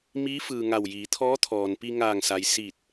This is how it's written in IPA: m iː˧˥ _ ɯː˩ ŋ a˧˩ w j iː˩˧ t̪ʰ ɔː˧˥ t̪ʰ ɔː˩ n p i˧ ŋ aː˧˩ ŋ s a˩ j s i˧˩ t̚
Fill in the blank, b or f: f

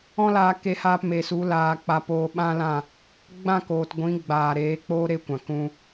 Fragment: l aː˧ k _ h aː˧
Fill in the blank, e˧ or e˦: e˧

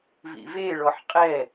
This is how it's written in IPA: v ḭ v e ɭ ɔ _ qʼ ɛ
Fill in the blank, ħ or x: ħ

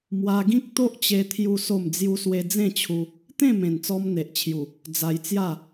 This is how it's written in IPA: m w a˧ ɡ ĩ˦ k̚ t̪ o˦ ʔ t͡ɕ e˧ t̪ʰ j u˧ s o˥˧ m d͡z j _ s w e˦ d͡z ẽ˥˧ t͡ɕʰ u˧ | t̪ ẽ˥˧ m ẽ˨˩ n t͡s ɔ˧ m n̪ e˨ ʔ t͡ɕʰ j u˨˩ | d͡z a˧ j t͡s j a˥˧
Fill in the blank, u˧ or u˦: u˦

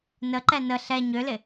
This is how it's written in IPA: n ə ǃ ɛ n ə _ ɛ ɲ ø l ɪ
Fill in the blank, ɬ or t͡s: ɬ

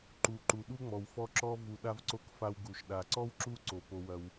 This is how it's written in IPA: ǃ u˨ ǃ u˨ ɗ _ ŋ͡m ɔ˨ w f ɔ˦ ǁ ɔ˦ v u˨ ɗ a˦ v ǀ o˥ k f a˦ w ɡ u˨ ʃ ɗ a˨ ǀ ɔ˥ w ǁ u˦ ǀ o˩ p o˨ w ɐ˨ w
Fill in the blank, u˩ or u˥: u˥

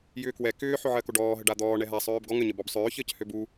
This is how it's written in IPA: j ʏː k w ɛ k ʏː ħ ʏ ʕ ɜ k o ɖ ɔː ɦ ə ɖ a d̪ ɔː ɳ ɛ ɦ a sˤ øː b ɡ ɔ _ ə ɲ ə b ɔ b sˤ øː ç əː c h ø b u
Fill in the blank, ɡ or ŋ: ŋ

